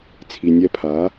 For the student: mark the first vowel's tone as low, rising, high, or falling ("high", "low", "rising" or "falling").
low